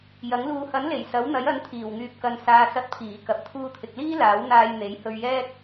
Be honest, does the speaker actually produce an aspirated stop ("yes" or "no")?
yes